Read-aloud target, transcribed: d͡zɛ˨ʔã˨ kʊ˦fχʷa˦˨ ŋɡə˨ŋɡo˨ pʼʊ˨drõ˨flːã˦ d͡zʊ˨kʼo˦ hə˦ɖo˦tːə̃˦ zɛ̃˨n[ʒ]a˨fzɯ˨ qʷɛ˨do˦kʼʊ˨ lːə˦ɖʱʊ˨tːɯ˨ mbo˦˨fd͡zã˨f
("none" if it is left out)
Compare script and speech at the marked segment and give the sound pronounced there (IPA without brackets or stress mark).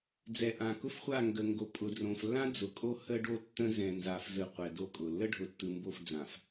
z